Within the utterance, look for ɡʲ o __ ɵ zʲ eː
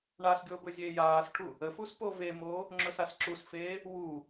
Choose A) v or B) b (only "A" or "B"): B